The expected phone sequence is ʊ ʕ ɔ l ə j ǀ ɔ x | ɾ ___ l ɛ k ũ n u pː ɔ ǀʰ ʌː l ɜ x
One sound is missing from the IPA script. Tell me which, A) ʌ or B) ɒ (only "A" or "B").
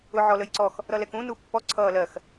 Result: A